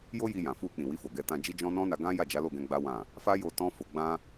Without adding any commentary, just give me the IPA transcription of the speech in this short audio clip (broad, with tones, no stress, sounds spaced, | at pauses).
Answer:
j o˦ j i˧ j ã˨ f u˧ k͡p ĩ˨ w i˧ f o˨ ɡ ɛ˧ t ã˧ d͡ʒ i˦ d͡ʒ ɔ̃˦ n ɔ̃˦ n a˧ ɡ ã˦ j a˦˨ d͡ʒ a˨˦ l o˦˨ ɡ ɛ̃˧ ɡ͡b a˦ w ã˦˨ | f a˦ j o˧ t ɔ̃˦ f o˧ ɡ͡b ã˦